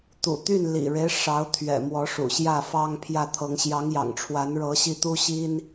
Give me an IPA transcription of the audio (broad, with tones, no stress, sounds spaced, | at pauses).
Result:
t̪ ṵ˨˩ t̪ y˥˩ n l ḭ˨˩ ɻ e˦ ɪ̯ ʂ ɑ˧˥ ʊ̯ t̪ʰ ɥ ɛ̰˨˩ m w ɔ˧˥ ʂ ṵ˨˩ ɕ j ä˥˩ f ɑ˥ ŋ pʰ j ä˥˩ t̪ʰ ɤ˧˥ ŋ ɕ j ɑ˧˥ ŋ j ɑ̰˨˩ ŋ ʈ͡ʂʰ w a˧˥ n ɻ ɤ˧˥ ɕ i˥˩ t̪ u˥ ɕ i˥ n